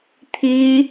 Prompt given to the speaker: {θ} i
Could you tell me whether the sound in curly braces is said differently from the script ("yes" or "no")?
yes